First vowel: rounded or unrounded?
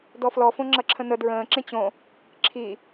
rounded